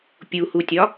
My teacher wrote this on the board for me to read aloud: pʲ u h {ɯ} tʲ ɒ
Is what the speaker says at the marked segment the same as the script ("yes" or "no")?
no